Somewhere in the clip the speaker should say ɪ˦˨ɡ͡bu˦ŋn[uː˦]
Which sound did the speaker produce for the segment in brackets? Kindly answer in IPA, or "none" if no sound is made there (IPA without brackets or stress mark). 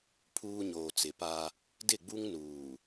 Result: uː˨